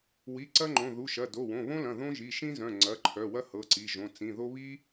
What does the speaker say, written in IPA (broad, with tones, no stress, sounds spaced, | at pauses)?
w i˩˧˩ ǀ ɐ˥ ŋ͡ǃ õ˩˧˩ ð u˩˧˩ ʃ ɐ˩˧˩ d o˩˧˩ w õ˩˧˩ β õ˥ l ɐ̃˩˧˩ ð õ˥ ʒ i˩˧˩ ʃ ĩ˥ z œ̃˩˧˩ ŋ͡ǀ ɐ˩˧˩ ǃʰ œ˩˧˩ w ɐ˥ h ɤ˩˧˩ ǀ i˩˧˩ ʒ õ˩˧˩ t͡s ĩ˩˧˩ ð o˥ β i˥